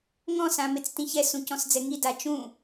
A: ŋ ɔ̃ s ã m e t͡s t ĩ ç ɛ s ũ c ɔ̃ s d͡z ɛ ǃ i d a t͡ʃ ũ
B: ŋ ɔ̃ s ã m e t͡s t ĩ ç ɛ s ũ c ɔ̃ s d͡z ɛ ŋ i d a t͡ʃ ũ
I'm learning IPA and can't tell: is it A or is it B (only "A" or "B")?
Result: B